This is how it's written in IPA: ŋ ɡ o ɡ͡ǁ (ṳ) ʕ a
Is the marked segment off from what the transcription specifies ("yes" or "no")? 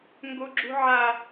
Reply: no